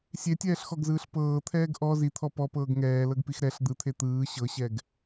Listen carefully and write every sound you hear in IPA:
sʲetʲɛːɬxɔɡzɯːɬ pɤːt̪ʰɛːɡ ʔɔ zit̪ʰɔ pɔpɤːɡ ŋɛːlɤɡpix ɾɛɬ d̪ɯt̪ʰe t̪ɯː ɕɤɕɛɡ

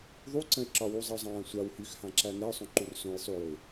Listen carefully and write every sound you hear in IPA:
ðˤuǀə̃ɪ̯ǁɒ wuzˤəʊ̯zˤãːsʷaw hyxhãǁæ nɛʊ̯sˤõ ǃursõj sˤujoɪ̯

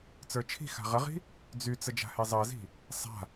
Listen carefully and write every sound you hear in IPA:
t͡sə˞t͡ʃʰi̤xa̤ ʁəʁi̤ | d͡zyt͡sə d͡ʒa̤hezˤɜzi̤ | sˤa̤

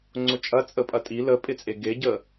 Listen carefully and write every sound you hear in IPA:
ŋ͡ǀʊt͡ʃʼɐ t͡sʼəpʼɐtʼi ləpʼɪt͡sʼe ɡeɟə

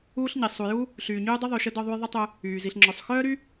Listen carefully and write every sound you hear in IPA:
uː˥ɬɲi˩ sˤu˨ju˥ | ɬyː˨ ɲyː˦dˤy˦ ðˤy˨ʃə˦ dɔ˦ðˤu˦jðˤə˥tˤʏ˦ | yː˩ zi˨ɬŋ͡ǁœ˨sˤ xœː˥ɾy˥

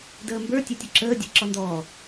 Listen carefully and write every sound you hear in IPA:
dəːmbə˞ tʲɛtʲʊǁəː dʲæ̤ǁɔndɔː

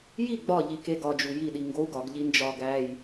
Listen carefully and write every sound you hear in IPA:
ji ɡ͡bɒ ʎikeɡ ɒd͡ʒu jiɗi ŋɡou̯ɡɒɡ ʎind͡ʒɒ ɡæj

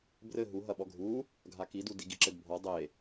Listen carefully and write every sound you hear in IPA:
brɘ ɦu ɦɐɓɔɡʱu | ɡʱakidudi ɡiǁɘdbʱɔ dˤe

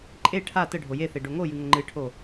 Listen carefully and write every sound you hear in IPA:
ǃʼe ʈʰa təɖʱo jeθe ɖoŋojɨ ŋəŋ͡ǃɨʈʰo

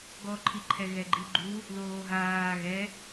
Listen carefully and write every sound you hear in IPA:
ɡɔǃʰiǃʰɛ ɣɛɡ͡ǃiɡ͡ǃu | ðoːɦaː ɣɛ

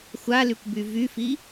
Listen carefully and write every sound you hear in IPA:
xʷalykʷby vyfi

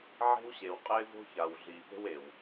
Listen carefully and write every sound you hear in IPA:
ʕe̤˦wɕe˨w qʼɪː˦vo̤˦ça˨wɮiː˨ pe̤˦we˨w

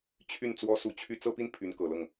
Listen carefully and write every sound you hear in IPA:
t͡ɕʰy˥˩n t͡swɔ˥su˧˥t͡ɕʰy˥˧ t͡sɤ˥˧pi˥˩n pʰy˧˥nkɤ˨˩lɤ˥˩ŋ

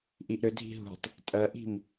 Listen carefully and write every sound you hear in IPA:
ʔiʔɾʏdʱi̤ ɦṳtˤ | tʼɜʔi̤m

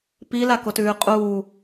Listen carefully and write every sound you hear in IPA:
pilakotʉː qʼu

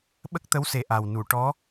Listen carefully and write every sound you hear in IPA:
ɓə˦˥k̚t̪ə˧˥wse˨˩ ʔa˨˩wnu˨˩˨ ʈɔ˧˥

